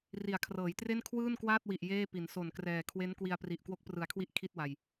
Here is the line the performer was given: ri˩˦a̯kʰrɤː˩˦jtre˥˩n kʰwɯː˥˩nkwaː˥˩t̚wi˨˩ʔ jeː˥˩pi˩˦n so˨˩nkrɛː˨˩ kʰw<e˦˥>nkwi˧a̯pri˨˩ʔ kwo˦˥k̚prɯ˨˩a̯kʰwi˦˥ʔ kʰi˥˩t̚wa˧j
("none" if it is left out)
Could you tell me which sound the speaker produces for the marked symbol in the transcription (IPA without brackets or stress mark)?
e˦˥